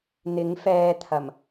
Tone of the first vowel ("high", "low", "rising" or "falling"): rising